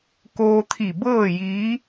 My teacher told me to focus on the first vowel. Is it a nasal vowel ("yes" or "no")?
no